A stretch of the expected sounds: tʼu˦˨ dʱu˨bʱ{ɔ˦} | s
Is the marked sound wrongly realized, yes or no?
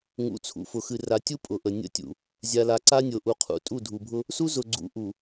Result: yes